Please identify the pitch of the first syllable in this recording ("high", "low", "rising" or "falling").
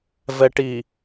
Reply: low